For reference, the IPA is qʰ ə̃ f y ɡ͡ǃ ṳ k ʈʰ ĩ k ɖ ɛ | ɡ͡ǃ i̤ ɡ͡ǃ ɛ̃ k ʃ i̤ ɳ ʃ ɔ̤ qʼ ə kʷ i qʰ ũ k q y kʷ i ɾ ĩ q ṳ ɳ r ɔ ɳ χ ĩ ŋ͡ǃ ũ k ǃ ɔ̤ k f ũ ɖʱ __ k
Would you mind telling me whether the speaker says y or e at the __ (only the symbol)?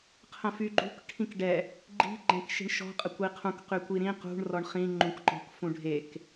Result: e